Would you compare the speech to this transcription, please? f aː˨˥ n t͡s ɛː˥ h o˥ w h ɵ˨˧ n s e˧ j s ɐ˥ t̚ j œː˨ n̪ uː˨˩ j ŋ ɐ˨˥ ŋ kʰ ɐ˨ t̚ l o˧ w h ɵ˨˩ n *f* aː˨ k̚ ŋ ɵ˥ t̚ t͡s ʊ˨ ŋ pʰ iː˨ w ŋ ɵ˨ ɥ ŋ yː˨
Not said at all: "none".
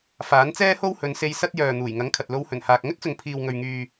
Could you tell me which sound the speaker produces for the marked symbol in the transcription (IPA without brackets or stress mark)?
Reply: h